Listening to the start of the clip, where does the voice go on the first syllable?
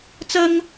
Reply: high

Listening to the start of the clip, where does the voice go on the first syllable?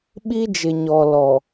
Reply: high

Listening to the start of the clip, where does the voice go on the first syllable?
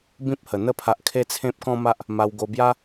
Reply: high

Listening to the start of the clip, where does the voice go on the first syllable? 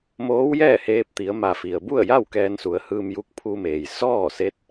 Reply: rising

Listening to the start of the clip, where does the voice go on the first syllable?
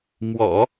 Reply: low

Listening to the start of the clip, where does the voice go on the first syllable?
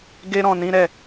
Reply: high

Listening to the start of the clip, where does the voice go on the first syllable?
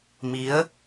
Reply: rising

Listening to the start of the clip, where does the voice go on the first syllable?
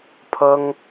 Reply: high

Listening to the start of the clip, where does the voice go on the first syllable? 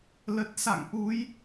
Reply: low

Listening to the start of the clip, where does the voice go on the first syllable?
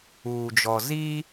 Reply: low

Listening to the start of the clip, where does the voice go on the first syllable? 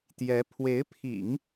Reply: rising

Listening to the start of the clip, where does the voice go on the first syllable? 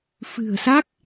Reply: low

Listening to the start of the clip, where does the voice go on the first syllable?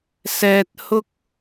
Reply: low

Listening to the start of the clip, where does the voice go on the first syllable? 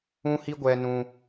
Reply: high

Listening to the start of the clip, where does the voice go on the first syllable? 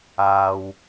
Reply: low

